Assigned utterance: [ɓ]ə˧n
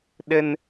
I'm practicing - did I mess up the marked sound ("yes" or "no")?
yes